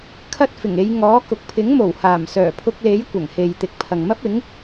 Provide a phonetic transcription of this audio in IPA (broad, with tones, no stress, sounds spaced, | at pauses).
kʰ ɐ˥ t̚ f ɪ˨˩ ŋ e˨˧ j ŋ ɔː˨˥ k ʊ˨˥ k̚ pʰ ɪ˨˥ ŋ m o˨˩ w h aː˨˩ m s œː˨˩ pʰ ʊ˧ k̚ l e˨˥ j kʷ ɐ˨˩ ŋ h e˨ j t̪ ɪ˨ k̚ pʰ ɐ˨ ŋ m ɐ˥ p̚ ɪ˨˥ ŋ